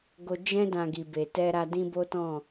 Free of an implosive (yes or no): yes